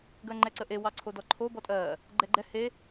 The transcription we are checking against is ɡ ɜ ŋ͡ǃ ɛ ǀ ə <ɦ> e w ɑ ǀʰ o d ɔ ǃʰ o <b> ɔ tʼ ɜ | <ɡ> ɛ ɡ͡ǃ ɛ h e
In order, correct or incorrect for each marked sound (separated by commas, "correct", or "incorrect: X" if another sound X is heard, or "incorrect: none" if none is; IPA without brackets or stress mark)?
incorrect: ʔ, correct, incorrect: ɡ͡ǃ